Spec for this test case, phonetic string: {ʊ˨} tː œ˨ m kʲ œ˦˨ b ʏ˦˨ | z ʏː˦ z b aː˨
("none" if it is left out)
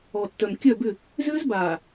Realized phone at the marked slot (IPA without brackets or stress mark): ɔ˨